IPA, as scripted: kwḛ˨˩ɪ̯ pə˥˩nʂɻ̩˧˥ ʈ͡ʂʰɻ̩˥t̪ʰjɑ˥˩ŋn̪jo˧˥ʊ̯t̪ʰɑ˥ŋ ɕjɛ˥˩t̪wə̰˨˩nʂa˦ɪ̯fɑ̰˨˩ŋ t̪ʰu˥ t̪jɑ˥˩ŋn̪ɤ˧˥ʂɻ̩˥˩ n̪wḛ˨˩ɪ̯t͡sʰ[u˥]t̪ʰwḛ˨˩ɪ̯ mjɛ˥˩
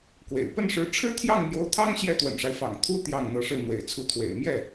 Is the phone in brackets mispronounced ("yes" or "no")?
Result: yes